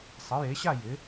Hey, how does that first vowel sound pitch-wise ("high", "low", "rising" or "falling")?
rising